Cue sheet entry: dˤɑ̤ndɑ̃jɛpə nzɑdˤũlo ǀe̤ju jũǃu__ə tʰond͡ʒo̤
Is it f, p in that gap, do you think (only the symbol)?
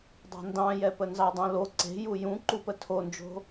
p